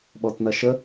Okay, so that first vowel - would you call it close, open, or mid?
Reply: mid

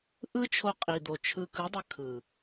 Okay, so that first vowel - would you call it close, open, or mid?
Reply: close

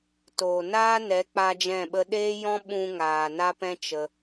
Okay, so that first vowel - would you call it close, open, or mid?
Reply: mid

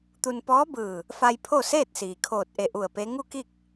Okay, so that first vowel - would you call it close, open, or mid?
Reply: close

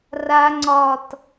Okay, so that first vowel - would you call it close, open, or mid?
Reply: open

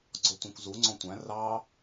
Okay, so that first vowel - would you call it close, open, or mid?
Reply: mid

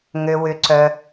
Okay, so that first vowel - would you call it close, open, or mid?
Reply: mid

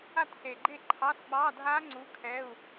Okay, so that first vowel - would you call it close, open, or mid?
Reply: open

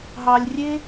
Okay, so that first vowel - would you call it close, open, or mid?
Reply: open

